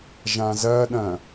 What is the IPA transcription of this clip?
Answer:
ʒ ã z ɐ ɗ ɐ̃

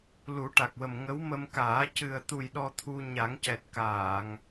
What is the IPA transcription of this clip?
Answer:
l u˨˩˦ ʈ a˨˩ k̚ w ə˨˩ m ŋ ə˧˥ w m ə˧ m k aː˨˩˦ c ɨ˨˩ ə̯ t̪ u˨˩ j ɗ ɔ˧ t̪ʰ u˧ ɲ a˨˩˦ ŋ c ɛ˨˩ t̚ k aː˨˩˨ ŋ

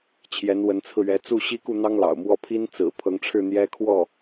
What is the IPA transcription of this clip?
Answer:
t͡ɕʰ j ɛ˧˥ n w ə˧˥ n t͡sʰ ɹ̩˧ ɥ ɛ˧˥ t͡s u˥˩ ɕ i˥ k u˥˩ n̪ ɑ˥ ŋ l ɑ̰˨˩ ʊ̯ m w ɔ˥˩ pʰ i˥ n t͡s ɹ̩˨˩ pʰ ɤ˧˥ ŋ ʈ͡ʂʰ ɻ̩˥˩ n̪ j ɛ˥ kʰ w ɔ˥˩

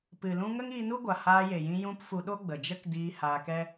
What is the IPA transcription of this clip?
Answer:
p ɨ˨ l ũ˧ ŋ ə˦ ŋ iː˧ n u˦ ɡʷ a˨ h aː˧ j e˨ j ĩ˧ j ũ˧ p f u˧ ɗ o˦ ɡ͡b ə˨ d͡ʒ ə˦ k d iː˧ h aː˧ k ɛ˦

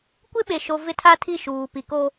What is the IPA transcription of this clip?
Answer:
kʷ ɪ˦ ɓ e˨ ʃ o˨ v ɪ˦ tʰ a˦ tʰ i˦˨ ʃ uː˨ p i˨ k o˦

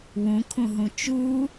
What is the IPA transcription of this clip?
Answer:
w ũ kʰ ũ ɦ ũ t͡ʃ u

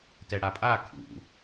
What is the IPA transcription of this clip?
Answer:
t ɛ ɽ a pʼ a kʰ ṵ

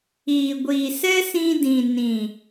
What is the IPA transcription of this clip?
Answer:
iː˨ ɡʷ iː˨ s ɛ˦ s ĩ˧ d ĩ˨ n ĩ˨

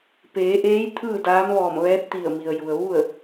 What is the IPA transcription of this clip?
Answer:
p eː˩˧ ʔ eː˧˥ j t̪ʰ ɯː˥˨ d aː˧˥ m ʋ ɔː˧˩ m ʋ ɛː˧˥ t̚ t̪ i˧˩ ə̯ m i˩ ə̯ j u˩ ə̯ ʋ u˥˨ ə̯

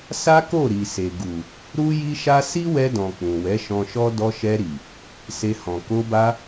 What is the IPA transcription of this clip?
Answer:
s a˦ k o˦˨ ɾ i˨ s e˨ ɡ u˨ | ɾ u˦ j i˦ ʃ a˦ s i˦ w ɛ˧ d ɔ̃˨ k͡p ũ˨ w ɛ˨˦ ʃ ɔ̃˧ ʃ ɔ˦ d ɔ˧ ʃ ɛ˧ ɾ i˨ | s e˧ h ɔ̃˨ k o˧ b a˧

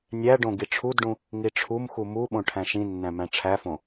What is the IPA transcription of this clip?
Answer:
nʲ æ ɖ õ ɡ i ʈ͡ʂʰ u d ɖ ũ | ŋ i ʈ͡ʂʰ u m x u m u ɓ õ ʈʰ æ̃ ʃ ĩ nː æ̃ m æ̃ ʈ͡ʂʰ æ f õ

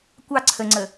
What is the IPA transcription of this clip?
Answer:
kʷ ɑ ǀʰ ə ŋ͡ǀ ə

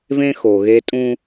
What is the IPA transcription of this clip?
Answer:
v ẽ˦ x o˨ ɣ e˦ tʼ ũ˦

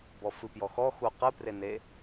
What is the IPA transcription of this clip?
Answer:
b ɔ f ɨ p j ɔ x ɔ x u q ɨ p r e n e

